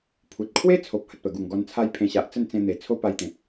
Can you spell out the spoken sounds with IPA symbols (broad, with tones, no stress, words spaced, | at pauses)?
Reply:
pʰu˨t̚kʰwe˦t͡sʰo˨p̚ hə˨t̚pə˨˩ɡu˨˩ŋ ɡɔ˧nt͡sʰa˦j pʰẽ˧ɕa˨ʔ t͡sə˥˧nt͡sẽ˧n̪e˨˩ t͡sʰo˦pa˧jt̪ẽ˨p̚